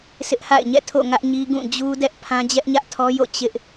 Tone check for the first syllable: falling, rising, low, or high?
high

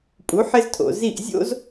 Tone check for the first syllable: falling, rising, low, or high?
rising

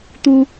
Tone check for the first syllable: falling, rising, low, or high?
high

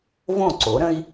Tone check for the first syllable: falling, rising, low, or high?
falling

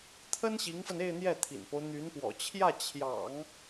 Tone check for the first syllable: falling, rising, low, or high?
high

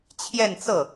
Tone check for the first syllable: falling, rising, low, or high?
falling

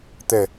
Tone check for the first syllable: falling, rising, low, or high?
falling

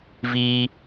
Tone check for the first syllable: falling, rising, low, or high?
high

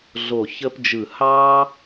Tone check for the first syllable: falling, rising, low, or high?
low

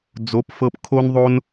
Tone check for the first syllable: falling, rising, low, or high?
rising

